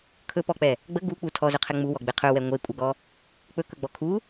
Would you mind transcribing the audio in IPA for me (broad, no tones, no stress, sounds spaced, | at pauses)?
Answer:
kʰ ɵ p ɔ k͡p ɛ | ɡ͡b ə ɡ u k͡p u tʰ ɔ z ɵ qʰ ɛ ŋ͡m u w ɔ ɡ͡b e qʰ ɵ w ɛ ŋʷ e kʷʼ ə ɡ ɔ | k͡p ɵ k ɵ ɡ͡b ɔ kʰ u